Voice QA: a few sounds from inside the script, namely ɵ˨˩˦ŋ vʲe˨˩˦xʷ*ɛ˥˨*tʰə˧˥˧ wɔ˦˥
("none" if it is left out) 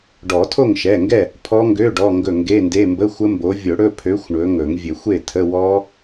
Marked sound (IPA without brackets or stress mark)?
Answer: e˥˨